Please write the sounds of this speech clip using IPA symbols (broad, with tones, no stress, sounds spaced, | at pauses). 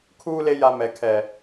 kʰ uː˦ l e˦ j a˦ m ɛ˦ kʰ ɛ˦